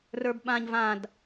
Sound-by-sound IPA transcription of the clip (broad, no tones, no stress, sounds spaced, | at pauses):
r ə˞ b ɓ ã ɲ v ã d